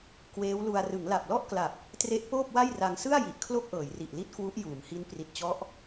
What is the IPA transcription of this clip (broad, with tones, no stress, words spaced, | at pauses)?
kweː˦˥wlu˧a̯ rɯ˩˦ŋla˨˩p̚lɔ˥˩ʔkla˨˩p̚ | tre˦˥ʔ poː˥˩p̚wa˥˩jra˧ŋ sɯ˥˩a̯ji˨˩ʔ kʰlo˥˩k̚ʔɤː˩˦jri˨˩ʔli˥˩t̚ kwu˦˥ʔjuː˩˦mhi˦˥n pri˨˩t̚t͡ɕɔ˦˥ʔ